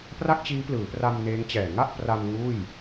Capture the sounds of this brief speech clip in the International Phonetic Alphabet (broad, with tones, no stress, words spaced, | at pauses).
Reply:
pra˥˩k̚t͡ɕiː˦˥plɯː˩˦pra˧m neː˦˥ŋt͡ɕɛː˨˩ ŋa˥˩ʔpra˧m ŋuː˥˩j